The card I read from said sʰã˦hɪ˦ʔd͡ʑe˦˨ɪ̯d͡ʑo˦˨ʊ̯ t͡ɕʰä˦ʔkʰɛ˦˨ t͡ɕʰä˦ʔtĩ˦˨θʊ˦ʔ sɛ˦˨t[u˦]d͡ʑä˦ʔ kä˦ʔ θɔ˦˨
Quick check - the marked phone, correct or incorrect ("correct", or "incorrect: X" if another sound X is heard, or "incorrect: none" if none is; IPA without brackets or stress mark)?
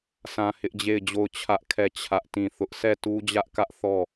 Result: correct